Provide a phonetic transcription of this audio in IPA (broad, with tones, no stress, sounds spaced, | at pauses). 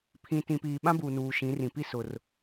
pʰ ĩ˨ t ĩ˨ p iː˨ ɓ ã˦ b uː˨ n uː˨ ʃ ĩ˨˦ r ĩ˨ p i˦ s ʊ˨ r